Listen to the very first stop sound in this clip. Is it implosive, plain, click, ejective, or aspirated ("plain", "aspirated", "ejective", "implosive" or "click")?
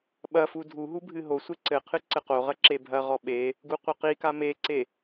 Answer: implosive